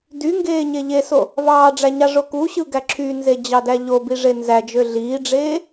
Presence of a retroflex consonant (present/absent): present